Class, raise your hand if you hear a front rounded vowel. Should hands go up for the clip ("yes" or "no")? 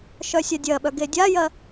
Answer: yes